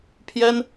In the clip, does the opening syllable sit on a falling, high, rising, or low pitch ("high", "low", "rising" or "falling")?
high